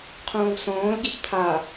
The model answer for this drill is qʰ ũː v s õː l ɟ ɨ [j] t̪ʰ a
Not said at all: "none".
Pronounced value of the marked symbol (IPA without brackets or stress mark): ç